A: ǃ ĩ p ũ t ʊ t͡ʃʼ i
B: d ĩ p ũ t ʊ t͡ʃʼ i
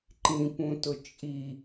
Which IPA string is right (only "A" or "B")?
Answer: A